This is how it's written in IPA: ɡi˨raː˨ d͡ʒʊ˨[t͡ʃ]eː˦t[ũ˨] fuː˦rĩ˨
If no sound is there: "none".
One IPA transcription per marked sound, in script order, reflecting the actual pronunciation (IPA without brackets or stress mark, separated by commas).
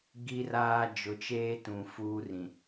t͡ʃ, ũ˨